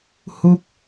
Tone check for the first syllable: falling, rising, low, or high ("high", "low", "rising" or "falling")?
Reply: high